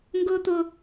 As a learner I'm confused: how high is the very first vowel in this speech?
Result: high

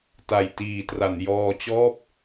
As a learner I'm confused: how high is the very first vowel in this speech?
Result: low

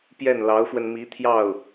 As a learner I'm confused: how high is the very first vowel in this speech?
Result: mid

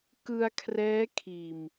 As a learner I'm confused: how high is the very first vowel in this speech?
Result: high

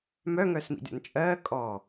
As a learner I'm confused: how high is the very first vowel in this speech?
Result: mid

